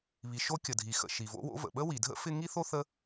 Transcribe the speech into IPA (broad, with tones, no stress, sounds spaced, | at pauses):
β i˩ ʃ o˥ kʲ ə˩ dʱ i˩ x ə̰˩ ʃ i˩ v o̰˥ w o̰˥ v ə̰˩ ɓ ə˥ w i˩ dʱ ə̰˥ f ɪ˥ ŋ i˥ θ o˥ θ ə˥